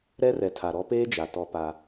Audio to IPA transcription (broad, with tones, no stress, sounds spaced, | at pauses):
ɾ ɛ˦ r ɛ˨ tʰ a˨ ɾ ɔ˦ p eː˦ d͡ʒ a˨ t ɔ˦ p a˦